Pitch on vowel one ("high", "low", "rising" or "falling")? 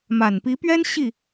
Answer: low